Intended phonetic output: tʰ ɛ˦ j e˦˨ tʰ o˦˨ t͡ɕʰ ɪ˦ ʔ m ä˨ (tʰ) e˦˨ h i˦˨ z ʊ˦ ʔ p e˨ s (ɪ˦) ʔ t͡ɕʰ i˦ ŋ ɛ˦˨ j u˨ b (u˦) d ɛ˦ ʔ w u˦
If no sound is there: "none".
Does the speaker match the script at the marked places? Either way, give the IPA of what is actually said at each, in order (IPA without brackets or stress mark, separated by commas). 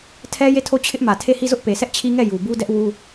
tʰ, ɛ˦, u˦